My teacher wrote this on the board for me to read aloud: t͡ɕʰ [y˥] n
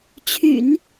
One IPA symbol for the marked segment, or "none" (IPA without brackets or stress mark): y̰˨˩˦